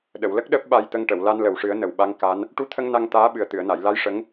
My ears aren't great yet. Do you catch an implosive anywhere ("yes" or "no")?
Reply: yes